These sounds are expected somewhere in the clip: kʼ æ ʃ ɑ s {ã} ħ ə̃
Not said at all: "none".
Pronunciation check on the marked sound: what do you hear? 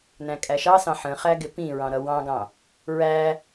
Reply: ɑ̃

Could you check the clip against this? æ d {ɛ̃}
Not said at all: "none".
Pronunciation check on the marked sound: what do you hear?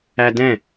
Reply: ɛ̃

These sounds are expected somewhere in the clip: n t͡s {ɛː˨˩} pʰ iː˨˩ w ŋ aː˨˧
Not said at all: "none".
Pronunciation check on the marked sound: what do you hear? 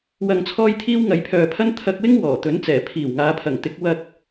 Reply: ɛː˨˩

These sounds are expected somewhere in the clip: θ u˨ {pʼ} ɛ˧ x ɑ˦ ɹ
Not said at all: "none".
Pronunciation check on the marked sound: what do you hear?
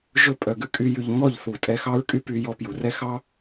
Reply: tʼ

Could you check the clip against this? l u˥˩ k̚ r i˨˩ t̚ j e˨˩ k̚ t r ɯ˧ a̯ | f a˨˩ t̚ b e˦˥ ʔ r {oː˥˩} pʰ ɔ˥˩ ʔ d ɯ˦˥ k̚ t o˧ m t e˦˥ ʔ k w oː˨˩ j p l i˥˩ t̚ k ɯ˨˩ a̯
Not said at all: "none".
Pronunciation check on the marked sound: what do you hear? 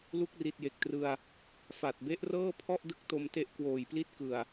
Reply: ɤː˥˩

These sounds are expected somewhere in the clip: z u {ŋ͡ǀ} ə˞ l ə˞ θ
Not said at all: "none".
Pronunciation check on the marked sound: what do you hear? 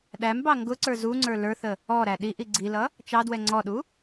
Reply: ŋ͡ǀ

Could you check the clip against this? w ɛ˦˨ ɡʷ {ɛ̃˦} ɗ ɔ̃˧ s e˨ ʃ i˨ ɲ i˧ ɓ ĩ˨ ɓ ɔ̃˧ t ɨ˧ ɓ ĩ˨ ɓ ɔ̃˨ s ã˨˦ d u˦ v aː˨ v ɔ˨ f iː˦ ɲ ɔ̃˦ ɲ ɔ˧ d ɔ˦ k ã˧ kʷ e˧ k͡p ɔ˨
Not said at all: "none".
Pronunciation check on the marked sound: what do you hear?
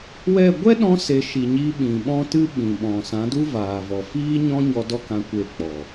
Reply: ɛ˦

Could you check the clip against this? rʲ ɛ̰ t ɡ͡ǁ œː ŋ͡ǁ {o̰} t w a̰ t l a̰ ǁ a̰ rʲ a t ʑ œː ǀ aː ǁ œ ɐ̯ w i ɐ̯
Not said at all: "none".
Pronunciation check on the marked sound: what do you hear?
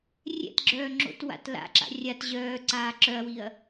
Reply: o̰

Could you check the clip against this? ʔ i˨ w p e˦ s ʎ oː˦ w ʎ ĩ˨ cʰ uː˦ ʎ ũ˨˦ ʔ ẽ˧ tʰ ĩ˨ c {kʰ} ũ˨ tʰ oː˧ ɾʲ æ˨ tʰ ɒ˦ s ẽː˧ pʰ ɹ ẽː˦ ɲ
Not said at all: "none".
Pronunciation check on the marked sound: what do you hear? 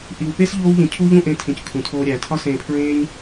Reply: kʰ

